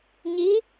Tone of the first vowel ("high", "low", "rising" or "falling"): rising